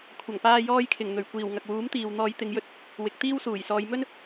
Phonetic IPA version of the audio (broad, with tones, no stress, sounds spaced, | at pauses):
kʷʰ ɐ˨˩ ŋ p aː˧ j ɔː˧ j kʰ ɪ˨˩ ŋ n̪ ɵ˨˩ ɥ kʷ iː˨˩ w ŋ ɐ˨ k̚ w uː˨˥ m t̪ iː˨ w n̪ ɔː˨˧ j t̪ ɪ˨˧ ŋ j ɵ˧ t̚ | w ɪ˨˥ k̚ t̪ iː˥ w s uː˨˩ j s ɔː˨˧ j m ɵ˥ n